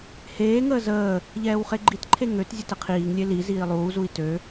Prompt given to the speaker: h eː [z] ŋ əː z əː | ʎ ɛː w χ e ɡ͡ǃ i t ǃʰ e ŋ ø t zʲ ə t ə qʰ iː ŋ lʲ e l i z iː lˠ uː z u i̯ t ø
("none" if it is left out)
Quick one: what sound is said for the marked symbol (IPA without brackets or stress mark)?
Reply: none